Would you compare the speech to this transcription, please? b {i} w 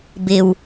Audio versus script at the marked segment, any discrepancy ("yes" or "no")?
yes